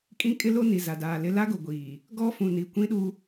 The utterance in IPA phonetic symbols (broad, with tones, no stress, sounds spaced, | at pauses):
kʼ ĩ˦ kʼ ɪ˦ l o˦ n i˨ z a˨ d aː˨ l ɪ˦ l a˦ ɡ o˨ ɡʷ iː˨ | ɡ ɔ˦ f ũ˨ n i˨ kʷ ĩ˦ ɗ u˦